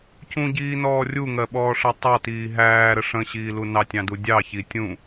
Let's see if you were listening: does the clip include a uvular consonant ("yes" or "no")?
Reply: no